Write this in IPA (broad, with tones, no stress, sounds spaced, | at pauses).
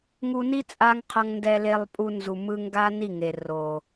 ŋ u˧ n i˦ t͡sʼ a˦ ŋ qʰ ʌ˧ ŋ n d ɛ˧ l e˧ lˠ pʼ u˧ n z u˨ m ɯ˧ ŋ ɡ a˦ n i˦˨ ŋ e˨ r o˨